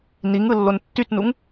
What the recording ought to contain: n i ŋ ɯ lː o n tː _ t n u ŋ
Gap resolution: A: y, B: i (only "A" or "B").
A